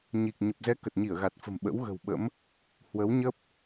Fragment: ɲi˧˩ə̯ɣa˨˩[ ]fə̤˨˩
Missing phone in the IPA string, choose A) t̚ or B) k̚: A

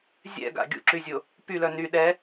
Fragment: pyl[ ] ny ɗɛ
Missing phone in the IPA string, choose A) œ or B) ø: A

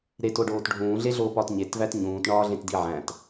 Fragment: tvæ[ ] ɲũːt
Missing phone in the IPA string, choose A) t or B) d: A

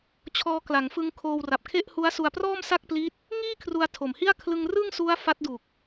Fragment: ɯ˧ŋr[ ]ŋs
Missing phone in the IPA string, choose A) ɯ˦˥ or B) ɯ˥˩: B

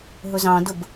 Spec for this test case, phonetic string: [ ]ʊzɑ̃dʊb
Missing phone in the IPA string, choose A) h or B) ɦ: B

